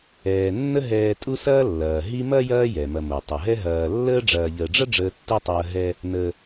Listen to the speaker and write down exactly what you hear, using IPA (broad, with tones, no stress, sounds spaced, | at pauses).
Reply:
ɛː˩ nː ə˦ ɦ ɛː˨ tʼ u˦ s ɐː˦ lː ɐː˩ ɦ i˦ m ɐ˥ j ɐː˦ j ɛ˩ m ɐ˨ m o˩ tˤ ɐ˩ ɦ ɛ˦ ɦ ɐː˨ lː əː˦ ɖ͡ʐ ɐː˨ ʎ əː˨ ɖ͡ʐ ɐ˥ ɖ͡ʐ əː˦ tː u˥ tˤ ɐː˦ ɦ ɛ˥ | n ə˨